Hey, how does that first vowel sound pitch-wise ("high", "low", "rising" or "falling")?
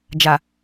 low